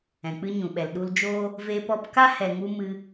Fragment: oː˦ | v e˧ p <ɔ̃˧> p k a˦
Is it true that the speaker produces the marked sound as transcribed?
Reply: no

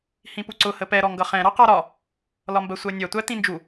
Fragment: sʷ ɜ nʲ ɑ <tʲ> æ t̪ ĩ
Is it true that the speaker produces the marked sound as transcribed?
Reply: no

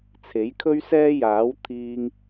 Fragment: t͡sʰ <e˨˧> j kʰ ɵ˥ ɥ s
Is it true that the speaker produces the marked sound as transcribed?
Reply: no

